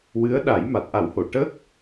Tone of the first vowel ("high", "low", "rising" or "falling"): rising